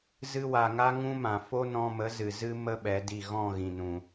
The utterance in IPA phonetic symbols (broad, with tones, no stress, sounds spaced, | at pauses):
z ɨ˧ w a˨ ŋ a˦ ŋ ũ˦ m ã˨ f o˦ n ɔ̃˧ m ə˨˦ z ɨ˨ z ɨ˦ m ə˦ ɓ ɛ˨˦ d i˦˨ ɣ ɔ̃˦˨ ɣ ĩ˨ n ũ˨